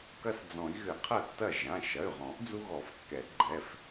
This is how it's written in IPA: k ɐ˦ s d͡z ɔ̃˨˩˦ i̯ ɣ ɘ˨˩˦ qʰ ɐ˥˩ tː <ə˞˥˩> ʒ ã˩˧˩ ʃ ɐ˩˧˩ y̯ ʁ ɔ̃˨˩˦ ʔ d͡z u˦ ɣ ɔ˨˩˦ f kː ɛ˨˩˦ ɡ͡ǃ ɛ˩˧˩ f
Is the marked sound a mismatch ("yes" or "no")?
yes